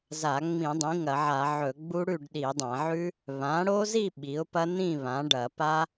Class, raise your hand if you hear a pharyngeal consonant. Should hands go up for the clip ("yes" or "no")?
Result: yes